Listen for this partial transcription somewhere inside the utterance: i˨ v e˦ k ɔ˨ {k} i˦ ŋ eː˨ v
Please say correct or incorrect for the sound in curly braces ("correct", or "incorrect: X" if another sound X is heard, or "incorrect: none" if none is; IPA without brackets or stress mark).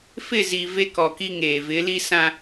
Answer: correct